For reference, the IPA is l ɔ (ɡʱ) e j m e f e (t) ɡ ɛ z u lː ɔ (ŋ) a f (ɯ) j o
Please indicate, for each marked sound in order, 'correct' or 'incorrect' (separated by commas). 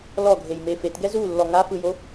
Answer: correct, correct, correct, correct